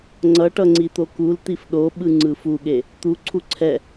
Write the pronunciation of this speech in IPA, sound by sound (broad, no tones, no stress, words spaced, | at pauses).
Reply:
ŋ͡ǀʌʈʌ ŋ͡ǀit̪okult̪if ɗoɓɯ ŋ͡ǀɯfuɠe | t̪uǀʰu ǀʰɛ